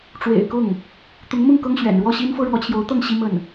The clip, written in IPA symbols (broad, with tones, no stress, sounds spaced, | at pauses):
ʈ͡ʂ w ḛ˨˩ ɪ̯ k ʊ˥˩ ŋ | t̪ ʊ˧˥ ŋ m ʊ˥˩ ŋ k ɤ˥ ŋ ɕ ɥ ɛ̰˨˩ n ɻ w ɔ˥˩ ɕ i˥ n f ɤ˥ ɻ w ɔ˧˥ t͡ɕʰ j o˧˥ ʊ̯ t̪ ɤ˥˩ ŋ ɕ i˥ m ə˥˩ n